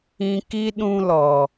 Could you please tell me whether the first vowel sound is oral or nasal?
nasal